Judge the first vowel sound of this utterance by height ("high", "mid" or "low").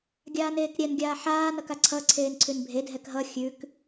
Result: low